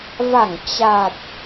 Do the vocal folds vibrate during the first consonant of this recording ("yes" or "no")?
yes